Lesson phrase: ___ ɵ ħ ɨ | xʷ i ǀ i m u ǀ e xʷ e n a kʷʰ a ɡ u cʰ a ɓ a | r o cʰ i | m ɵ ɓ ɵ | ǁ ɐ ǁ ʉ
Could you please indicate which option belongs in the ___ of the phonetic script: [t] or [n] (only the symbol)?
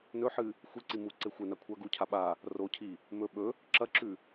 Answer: n